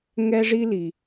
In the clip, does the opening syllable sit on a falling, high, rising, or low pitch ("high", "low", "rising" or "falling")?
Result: high